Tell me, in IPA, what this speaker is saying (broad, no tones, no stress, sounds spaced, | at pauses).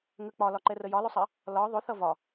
ŋ ə k͡p ɒ l ɒ ǃ ɛ r ə j ɒ l ʊ sˤ ɜ | l ɒ ðˤ ʊ θ ʌ v ɒ